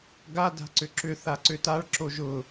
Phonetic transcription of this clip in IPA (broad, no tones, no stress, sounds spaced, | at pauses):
ɡ a d a̤ ǀ ʏ ǁ ʏ θ a ǀ ʏ t a ɭ ǁ o ʒ ʊ